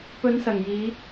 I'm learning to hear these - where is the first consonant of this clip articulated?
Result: lips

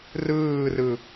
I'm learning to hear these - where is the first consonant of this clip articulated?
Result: tongue tip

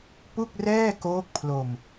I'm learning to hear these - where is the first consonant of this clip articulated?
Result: lips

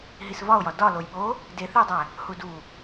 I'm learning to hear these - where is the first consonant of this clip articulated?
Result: throat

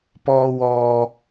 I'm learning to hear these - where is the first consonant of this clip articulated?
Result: lips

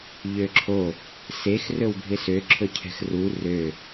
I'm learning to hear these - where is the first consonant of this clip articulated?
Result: palate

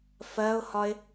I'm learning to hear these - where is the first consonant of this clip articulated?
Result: lips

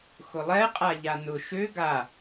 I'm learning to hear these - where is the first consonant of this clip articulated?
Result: velum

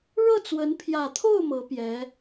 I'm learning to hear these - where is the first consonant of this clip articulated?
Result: retroflex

